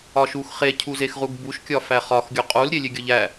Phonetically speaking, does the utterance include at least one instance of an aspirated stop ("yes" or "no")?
yes